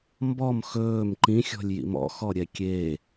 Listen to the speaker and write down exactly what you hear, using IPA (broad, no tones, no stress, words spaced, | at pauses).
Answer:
mbɔm xɵːm ǃĩxʲɔ̤lʲjḭm ɔ̰xɔɾʲɛ kʲe